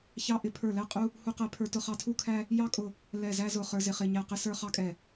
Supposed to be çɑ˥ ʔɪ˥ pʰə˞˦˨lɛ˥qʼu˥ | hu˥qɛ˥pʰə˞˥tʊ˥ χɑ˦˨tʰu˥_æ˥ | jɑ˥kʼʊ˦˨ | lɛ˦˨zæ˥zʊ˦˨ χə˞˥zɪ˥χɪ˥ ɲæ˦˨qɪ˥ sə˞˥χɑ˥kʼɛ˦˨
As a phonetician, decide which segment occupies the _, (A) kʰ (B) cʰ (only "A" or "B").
A